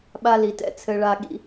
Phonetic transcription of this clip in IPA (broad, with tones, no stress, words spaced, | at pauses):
ɓa˦li˩˧tɛ̰˦ t͡sʰɘ˦ɭa˦ ɠḭ˦